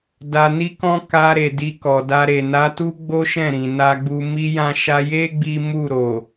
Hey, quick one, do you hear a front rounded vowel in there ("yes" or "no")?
no